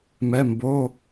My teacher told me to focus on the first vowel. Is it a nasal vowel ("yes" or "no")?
no